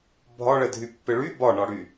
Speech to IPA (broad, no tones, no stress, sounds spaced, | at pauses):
bʱ ɒ ɭ ɛ dʱ y pː ɪ ɭ y b ɒ ɳ ɒ ɽ y